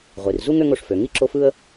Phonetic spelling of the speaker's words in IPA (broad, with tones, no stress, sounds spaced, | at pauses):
ʁʷ i˩ r z u˥ ŋ ø˦ ŋ o˩ ʂ f ø˩ ŋ i˥ ǁ o˦ f ɯ˥ ə̯